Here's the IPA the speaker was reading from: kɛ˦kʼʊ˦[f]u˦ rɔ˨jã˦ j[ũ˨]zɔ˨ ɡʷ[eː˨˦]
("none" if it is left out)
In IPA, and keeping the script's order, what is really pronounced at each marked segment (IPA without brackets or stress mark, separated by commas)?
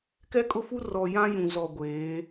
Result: f, ũ˨, eː˨˦